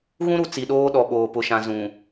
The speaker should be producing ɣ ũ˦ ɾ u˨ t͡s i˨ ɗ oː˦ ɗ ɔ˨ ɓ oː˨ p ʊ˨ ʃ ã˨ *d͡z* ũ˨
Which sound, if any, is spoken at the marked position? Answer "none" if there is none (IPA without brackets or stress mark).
z